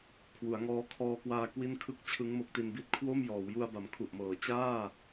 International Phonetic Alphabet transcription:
kʰwu˩˦a̯ŋɔː˦˥ kʰɔː˧kwaː˧ kwi˥˩nkʰɯ˥˩k̚ t͡ɕʰɯ˦˥ŋmo˦˥k̚ti˧nbi˥˩t̚ kʰwo˥˩mjɔː˩˦wju˧a̯ ba˨˩mkʰu˨˩ʔmɤː˩˦ t͡ɕaː˥˩

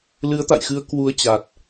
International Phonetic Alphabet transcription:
lɨ˨˦ə̯t̪a̰˧˨jxɨ˨˦ə̯ kwu˨˦ə̯t͡ɕa˨˩t̚

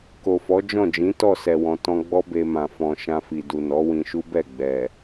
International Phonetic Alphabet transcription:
ko˨fɔ˨˦d͡ʒɔ̃˦˨ d͡ʒĩ˨˦tɔ˦˨ sɛ˨wɔ̃˨ tɔ̃˧ɡ͡bɔ˦ be˧ mã˨fɔ̃˨ ʃã˧fi˨du˨ nɔ˨˦wĩ˧ʃu˦ bɛ˦˨ɡ͡bɛ˨

